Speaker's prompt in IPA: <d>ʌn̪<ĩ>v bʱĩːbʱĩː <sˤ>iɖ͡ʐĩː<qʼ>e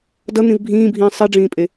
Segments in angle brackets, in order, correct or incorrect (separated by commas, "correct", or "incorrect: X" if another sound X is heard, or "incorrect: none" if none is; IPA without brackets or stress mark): correct, correct, correct, incorrect: pʼ